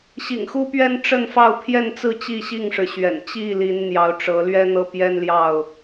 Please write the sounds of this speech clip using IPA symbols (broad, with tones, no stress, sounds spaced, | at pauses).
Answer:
ɕ ḭ˨˩ ŋ x u˦ p ɥ ɛ˦ n ʈ͡ʂ ə˥˨ n f ɑ˥˨ ʊ̯ pʰ j ɛ˥˨ n t͡s ɹ̩˥˨ t͡ɕ i˥˨ ɕ i˥˨ ŋ ʂ ɻ̩˩ ɕ ɥ ɛ̰˨˩ n t͡ɕ i˥˨ l i˨˦ n n̪ j ɑ˨˦ ʊ̯ ʈ͡ʂ ɤ˨˦ l ɥ ɛ˦ n̪ ɤ˦ p j ɛ˦ n l j ɑ˥˨ ʊ̯